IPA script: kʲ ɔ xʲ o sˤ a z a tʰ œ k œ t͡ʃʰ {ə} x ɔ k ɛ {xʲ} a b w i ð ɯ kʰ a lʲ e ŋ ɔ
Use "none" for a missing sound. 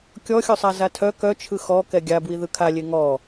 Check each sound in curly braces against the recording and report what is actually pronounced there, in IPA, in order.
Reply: ɯ, ɡʲ

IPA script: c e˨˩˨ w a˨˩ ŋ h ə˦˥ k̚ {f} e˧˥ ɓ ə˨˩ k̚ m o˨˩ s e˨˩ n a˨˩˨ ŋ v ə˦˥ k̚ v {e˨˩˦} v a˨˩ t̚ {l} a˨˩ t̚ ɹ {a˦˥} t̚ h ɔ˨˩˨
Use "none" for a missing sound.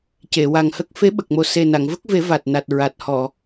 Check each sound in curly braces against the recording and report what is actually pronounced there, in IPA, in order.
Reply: f, e˨˩˦, n, a˨˩

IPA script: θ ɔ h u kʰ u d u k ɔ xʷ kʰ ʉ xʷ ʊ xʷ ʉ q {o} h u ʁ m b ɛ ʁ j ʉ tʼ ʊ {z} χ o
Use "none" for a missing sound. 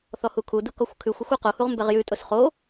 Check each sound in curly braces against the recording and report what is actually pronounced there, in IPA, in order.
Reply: o, s

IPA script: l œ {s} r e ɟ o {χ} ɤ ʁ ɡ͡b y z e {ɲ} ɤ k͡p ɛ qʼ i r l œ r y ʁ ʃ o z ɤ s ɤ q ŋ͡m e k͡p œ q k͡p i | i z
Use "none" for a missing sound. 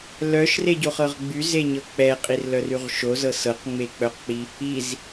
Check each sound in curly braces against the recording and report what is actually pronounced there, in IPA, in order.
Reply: ʃ, χ, ɲ

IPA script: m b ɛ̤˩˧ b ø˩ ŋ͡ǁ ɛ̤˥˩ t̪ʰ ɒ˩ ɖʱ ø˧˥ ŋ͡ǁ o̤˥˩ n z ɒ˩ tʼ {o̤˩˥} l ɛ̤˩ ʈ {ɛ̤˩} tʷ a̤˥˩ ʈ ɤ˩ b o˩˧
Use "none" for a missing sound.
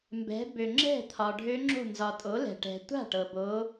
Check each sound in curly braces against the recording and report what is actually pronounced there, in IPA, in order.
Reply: o˩˥, ɛ̤˩

